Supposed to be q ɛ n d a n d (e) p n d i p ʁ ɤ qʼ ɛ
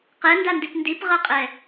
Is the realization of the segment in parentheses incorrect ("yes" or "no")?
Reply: yes